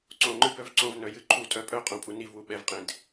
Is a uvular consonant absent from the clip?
no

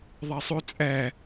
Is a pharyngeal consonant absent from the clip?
yes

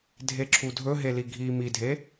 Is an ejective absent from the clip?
yes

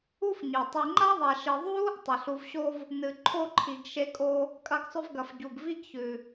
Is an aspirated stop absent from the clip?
no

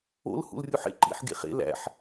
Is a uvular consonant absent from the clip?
no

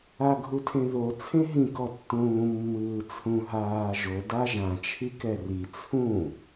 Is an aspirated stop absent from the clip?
no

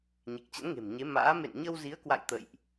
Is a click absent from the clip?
yes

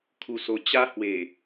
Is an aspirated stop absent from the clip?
no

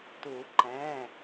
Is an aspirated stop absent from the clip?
yes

